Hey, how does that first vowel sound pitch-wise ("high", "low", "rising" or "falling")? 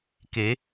rising